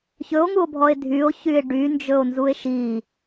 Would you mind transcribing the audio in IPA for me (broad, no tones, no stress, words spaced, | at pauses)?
çɵo̯ŋuo̯bʱɔe̯ dʱyo̯çye̯ ɖynd͡ʒɵo̯nzue̯ ʃi